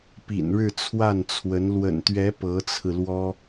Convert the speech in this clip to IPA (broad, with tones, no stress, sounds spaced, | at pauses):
p ḭ˨˩ n ɻ ɻ̩˥˧ t͡sʰ w a˥˩ n t͡sʰ w ə˧˥ n l w ə̰˨˩ n t̪ ɥ ɛ˧˥ p ɤ˧˥ t͡sʰ ɹ̩˧ l w ɔ˥